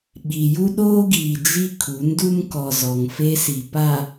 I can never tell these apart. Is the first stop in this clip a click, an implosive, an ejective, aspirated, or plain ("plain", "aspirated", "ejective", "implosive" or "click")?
implosive